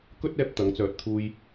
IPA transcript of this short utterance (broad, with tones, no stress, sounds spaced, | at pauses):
k ɵ˥ t̚ ɛː˥ p̚ t̪ ɐ˨˥ ŋ t͡s œː˧ t̚ t̪ʰ uː˥ j